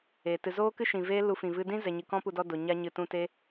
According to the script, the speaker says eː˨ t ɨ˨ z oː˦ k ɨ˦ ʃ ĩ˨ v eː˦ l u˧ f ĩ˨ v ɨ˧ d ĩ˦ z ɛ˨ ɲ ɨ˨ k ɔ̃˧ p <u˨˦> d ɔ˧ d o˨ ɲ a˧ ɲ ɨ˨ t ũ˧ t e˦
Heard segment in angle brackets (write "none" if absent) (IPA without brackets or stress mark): u˨